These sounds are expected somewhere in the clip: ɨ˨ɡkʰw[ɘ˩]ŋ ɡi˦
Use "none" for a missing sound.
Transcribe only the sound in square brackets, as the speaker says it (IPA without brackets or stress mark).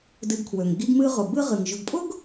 ø˩